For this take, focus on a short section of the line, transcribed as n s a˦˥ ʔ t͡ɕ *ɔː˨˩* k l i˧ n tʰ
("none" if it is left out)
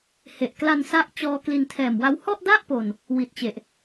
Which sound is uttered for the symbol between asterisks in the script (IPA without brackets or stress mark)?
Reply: ɔː˧